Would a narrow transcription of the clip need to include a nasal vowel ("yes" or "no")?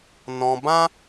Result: yes